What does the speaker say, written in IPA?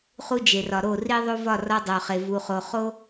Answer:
χ u˦ d͡ʒ e˨ r ɒ˨ ɾ o˦˨ r i˦ ðˤ o˦ v ɒ˦˨ r ɒ˦ dˤ o˨ χ e˨ v u˨ χ o˨ χ o˦

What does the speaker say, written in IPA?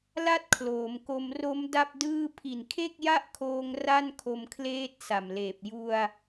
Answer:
l a˥˩ t̚ kʰ l oː˩˦ m k o˧ m r o˦˥ m d a˥˩ p̚ d ɯː˥˩ pʰ i˨˩ n kʰ e˥˩ k̚ j a˥˩ ʔ kʰ oː˧ ŋ r a˥˩ n kʰ o˧ m kʰ l eː˦˥ t̚ s a˨˩ m l eː˨˩ p̚ j u˧ a̯

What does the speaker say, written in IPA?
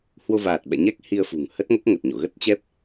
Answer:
h w o˧ v aː˨˩ t̚ ɓ ɛ̰˧˨ ɲ ɛ˦˥ k̚ h i˧ ə̯ f ṳ˨˩ ŋ h ə˦˥ t̚ ŋ o˦˥ k̚ ŋ ə˨˩ t̚ ɲ o̰˧˨ ɣ ə˦˥ t̚ t͡ɕ ɛ˦˥ p̚

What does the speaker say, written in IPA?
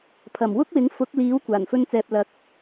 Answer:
pʰ ɐ˨˩ m w ʊ˥ k̚ w ɪ˨˥ ŋ f ʊ˨˥ k̚ l iː˨˥ w kʷ aː˨˩ n f ɵ˥ n t͡s ɛː˧ p̚ l ɐ˨˥ k̚

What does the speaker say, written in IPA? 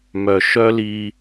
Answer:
m œ˨ ʃ œ˦ l i˧

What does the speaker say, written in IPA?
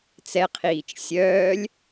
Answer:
t͡s ɛ qʰ iː t͡ʃ sʲ œː lʲ

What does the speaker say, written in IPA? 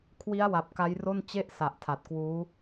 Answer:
kʰ w i˦˥ a̯ w a˨˩ p̚ k a˦˥ j r o˥˩ n t͡ɕ e˥˩ ʔ s a˨˩ ʔ tʰ a˨˩ t̚ k w uː˦˥

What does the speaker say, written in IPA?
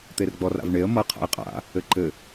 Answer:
t̪ e r ɡ͡b ɔ r a̰ v ɳ e ə̯ m ʌ qʰ a̰ ɪ̯ qʼ a̰ | ɘ ǃ ɘ

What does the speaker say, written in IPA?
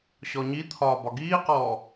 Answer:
ɕ ɔ ɲ i t̪ʰ ɒː b ɒ ɡ iː q ɔː

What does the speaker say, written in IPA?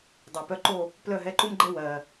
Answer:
dˤ ɛ˨˩ p œ˧˥˧ ǃ o˥˧ | p l œ˥˧ ɦ ɛ˧˥˧ ǃ u˥ m ɡ͡ǃ ɛ˥ w ɜ˨˩

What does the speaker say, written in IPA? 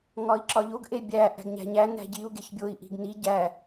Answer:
ŋ ɒ i̯ ǁ ɒ ʎ o ɡ ʔ e bʲ æ ʔ æ̤ ɡ ɲ æ̤ ɲ æ n æ̤ ɟ i u̯ ɡ e ç bʲ o i̯ ʔ i̤ ɡ n i ɟ æ

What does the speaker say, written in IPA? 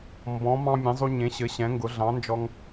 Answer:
m b ɔ̃˨˥ m ɑ̃˦ mʲ ẽ˨˥ zˤ u˦ ɲ ẽ˨˥ ɕ ɘ˨˥ ɕ ɛ̃˨˥ ŋ ɡ ʊ˨˥ ɮ ɑ̃˨˥ n d͡ʒ ɔ˦ ŋ

